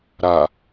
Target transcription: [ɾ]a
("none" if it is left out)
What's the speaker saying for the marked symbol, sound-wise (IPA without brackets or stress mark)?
ɾ